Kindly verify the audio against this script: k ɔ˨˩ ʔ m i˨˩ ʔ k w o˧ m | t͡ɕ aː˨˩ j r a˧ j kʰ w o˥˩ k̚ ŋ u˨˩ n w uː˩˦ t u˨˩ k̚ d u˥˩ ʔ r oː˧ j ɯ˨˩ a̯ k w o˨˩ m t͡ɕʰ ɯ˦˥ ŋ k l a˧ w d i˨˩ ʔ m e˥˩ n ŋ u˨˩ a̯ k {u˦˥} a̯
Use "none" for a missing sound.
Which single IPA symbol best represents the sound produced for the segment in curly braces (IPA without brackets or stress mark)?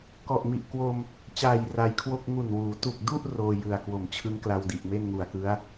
ɯ˦˥